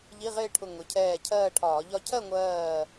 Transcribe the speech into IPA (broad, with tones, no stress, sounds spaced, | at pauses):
ʎ i˧˥˧ ʁ ɪː˥˧ ʈʰ ʊ˧˩ ŋ ʊ˩˧ cʰ ɛː˧˩ cʰ ɜː˥˧ ʈʰ ɒː˧˩˧ ʎ ɒ˥˧ cʰ ɜ˥˧ ŋʷ ɜː˧˩